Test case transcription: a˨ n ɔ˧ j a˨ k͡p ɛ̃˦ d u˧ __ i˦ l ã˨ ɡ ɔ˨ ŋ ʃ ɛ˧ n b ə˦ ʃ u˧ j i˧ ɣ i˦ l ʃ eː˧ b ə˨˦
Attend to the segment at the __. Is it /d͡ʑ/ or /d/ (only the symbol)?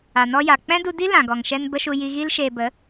d